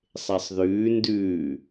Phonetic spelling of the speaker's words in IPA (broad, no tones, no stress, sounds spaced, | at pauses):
sˤ e sˤ ð ʉː n d ʉː